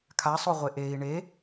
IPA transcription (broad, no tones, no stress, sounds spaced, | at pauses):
kʰ a sˤ o ʁʷ e ʔ e i̯ ɳ e